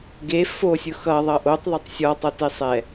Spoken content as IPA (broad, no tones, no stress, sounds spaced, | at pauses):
ɡ e f o sʲ ʊ x ʌ ðˤ ʌ ʔ o tˤ ðˤ ʌ tˤ sʲ ɔ tˤ ʌ t e sˤ ɛ